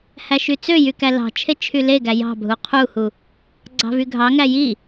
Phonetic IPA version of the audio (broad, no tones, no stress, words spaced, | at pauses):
hæʃyt͡søjy kælɑ̤t͡ʃʰe t͡ʃʰyleɡæ jɑ̤bʱu qʰuhu | ɡ͡ǀɑ̤vyɡʱɑŋæ ji